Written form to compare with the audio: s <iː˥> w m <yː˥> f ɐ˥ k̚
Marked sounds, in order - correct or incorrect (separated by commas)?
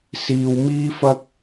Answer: incorrect, incorrect